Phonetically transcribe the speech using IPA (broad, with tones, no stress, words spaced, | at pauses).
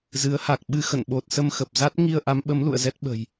zɨ˨˦ə̯ha˨˩k̚ɓɨ˧ xə̰˧˨nɓo˨˩t̚sə˧m xə˨˩p̚za˦˥t̚ ŋi˧ə̯ʔa˨˦mɓə˨˦m lṵ˧˨ə̯zɛ˦˥t̚ ɓə̤˨˩j